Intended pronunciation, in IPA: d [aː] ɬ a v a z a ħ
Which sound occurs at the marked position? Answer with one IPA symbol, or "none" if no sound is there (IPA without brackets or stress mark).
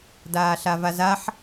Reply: aː